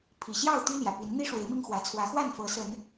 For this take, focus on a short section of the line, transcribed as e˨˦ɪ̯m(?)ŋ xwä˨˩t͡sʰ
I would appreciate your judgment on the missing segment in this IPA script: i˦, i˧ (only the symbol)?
i˧